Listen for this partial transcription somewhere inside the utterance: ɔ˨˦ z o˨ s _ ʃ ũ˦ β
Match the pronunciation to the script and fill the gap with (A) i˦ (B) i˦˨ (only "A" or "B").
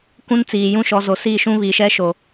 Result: B